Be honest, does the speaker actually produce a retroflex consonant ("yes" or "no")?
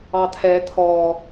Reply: no